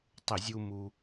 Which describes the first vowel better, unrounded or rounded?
unrounded